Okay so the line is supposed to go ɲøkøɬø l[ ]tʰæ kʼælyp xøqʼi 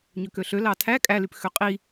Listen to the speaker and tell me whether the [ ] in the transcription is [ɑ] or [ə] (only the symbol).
ɑ